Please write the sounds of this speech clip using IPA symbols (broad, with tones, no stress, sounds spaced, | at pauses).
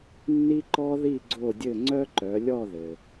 nː i˦ ǃ ɔ˦ ð i˦˨ ɡ͡ǀ o˦˨ dʲ ɘ˦˨ ŋ͡ǀ œ˦ ǃ œ˩˧ lʲ ɔ˦˨ ð ɘ˩